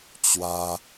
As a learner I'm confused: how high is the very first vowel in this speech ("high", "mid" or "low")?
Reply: low